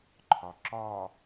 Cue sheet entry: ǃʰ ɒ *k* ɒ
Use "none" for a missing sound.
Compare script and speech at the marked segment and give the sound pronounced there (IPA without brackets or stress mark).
ǁ